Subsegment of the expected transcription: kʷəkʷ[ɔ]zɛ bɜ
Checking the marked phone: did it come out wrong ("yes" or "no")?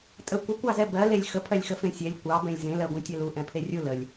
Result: yes